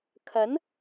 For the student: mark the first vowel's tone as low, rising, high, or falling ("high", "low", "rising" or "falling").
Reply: rising